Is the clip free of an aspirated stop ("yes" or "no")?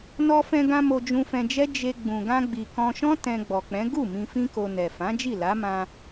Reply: yes